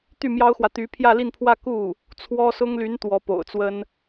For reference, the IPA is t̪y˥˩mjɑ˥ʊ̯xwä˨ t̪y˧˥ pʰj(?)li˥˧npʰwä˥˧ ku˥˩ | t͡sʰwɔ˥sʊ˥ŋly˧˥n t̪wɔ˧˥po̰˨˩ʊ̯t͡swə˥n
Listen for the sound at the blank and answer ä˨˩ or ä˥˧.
ä˥˧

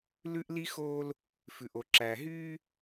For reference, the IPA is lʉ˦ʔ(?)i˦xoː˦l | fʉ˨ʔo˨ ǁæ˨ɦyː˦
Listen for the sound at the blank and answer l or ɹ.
l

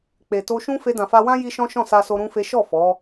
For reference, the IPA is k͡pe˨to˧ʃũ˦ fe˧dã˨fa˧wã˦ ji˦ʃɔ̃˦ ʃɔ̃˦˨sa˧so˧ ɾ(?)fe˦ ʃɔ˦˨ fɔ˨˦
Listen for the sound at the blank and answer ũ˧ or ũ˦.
ũ˦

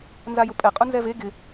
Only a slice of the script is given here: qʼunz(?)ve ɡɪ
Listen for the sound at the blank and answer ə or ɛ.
ɛ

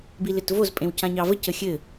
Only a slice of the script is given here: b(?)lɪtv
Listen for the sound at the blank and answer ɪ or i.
i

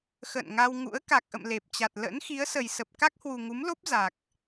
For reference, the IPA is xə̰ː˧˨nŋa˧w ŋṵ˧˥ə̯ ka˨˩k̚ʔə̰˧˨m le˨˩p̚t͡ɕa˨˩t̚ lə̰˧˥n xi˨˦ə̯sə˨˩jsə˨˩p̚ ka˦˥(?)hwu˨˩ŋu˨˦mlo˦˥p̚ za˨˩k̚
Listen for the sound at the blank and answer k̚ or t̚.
k̚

